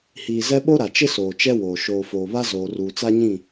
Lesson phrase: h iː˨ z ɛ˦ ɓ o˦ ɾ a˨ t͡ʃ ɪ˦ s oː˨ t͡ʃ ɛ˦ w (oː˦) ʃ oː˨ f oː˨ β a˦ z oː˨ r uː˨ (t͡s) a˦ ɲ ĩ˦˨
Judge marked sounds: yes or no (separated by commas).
no, yes